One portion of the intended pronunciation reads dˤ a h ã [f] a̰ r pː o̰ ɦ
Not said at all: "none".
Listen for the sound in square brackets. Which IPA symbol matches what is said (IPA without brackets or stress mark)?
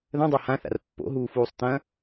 θ